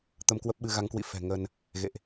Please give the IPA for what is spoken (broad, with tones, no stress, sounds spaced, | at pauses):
t̪ ə˧ m k w ə˦˥ p̚ ɓ ɨ˧ ɣ a˨˦ ŋ k w ḭ˧˨ f ɛ̤˨˩ ŋ ə˧ n | ɣ ḛ˧˨ ʔ